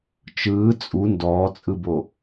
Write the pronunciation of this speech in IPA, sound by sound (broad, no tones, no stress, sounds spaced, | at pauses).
t͡ʃ ɯː t͡sʼ u n d ɔː t͡sʼ ɯ b o